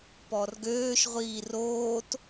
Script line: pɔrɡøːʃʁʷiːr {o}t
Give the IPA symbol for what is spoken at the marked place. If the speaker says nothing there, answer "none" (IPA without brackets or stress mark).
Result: oː